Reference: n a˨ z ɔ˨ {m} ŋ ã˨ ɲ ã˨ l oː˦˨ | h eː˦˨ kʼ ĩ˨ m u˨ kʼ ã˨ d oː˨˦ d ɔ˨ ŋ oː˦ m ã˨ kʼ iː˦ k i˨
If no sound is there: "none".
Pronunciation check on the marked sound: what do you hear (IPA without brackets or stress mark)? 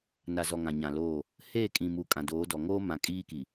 none